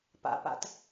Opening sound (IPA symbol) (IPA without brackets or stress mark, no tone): p